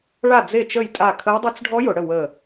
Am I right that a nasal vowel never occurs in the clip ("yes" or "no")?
yes